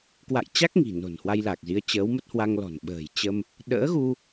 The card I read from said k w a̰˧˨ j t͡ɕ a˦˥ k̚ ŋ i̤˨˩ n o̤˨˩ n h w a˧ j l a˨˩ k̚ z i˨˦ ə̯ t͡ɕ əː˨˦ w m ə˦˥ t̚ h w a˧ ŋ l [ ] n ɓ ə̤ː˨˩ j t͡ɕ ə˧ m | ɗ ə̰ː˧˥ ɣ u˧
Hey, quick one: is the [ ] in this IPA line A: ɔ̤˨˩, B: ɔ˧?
A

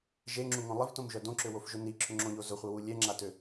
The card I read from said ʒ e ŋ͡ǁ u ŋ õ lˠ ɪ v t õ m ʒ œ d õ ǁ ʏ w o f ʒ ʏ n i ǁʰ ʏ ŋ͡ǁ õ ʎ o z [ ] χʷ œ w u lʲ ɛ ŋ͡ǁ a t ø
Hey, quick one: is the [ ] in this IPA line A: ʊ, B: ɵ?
A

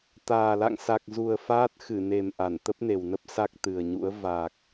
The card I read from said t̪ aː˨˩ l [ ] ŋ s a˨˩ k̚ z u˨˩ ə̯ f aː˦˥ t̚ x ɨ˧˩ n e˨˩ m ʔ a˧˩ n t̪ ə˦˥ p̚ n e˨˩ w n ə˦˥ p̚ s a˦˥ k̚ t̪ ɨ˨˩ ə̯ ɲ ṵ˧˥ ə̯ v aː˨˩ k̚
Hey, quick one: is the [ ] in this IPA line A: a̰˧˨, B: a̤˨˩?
A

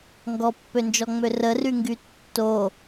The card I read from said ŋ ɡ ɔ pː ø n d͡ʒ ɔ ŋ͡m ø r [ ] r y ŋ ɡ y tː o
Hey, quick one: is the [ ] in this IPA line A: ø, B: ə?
B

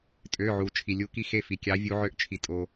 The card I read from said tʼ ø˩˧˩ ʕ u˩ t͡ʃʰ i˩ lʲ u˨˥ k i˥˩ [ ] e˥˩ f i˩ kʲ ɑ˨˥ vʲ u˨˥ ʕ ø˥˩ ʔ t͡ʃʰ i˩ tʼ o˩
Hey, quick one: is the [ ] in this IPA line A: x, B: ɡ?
A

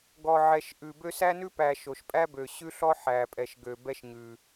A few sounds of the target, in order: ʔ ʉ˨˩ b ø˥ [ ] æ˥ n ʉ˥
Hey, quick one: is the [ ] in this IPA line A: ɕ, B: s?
B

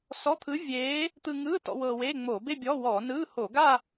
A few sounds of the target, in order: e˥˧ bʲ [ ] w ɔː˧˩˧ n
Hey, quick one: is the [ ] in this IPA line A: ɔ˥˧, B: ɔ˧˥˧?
B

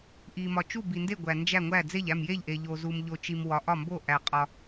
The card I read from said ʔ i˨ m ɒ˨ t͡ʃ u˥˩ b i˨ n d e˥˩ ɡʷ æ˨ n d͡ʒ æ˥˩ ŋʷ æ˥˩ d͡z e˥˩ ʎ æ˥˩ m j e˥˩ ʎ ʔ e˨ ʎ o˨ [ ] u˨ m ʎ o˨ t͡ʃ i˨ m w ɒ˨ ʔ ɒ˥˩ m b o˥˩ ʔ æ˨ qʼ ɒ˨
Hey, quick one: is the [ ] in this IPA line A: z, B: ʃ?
A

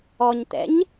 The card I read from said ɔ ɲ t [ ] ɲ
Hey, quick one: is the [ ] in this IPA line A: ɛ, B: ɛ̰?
B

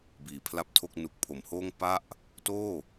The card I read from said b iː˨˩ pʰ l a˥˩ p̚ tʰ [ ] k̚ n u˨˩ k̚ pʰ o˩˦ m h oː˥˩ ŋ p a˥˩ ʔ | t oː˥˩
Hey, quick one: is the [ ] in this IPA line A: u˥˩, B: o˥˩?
B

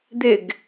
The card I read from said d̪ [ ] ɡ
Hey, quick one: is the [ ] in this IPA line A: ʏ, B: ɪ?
B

